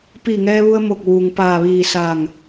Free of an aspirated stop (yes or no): yes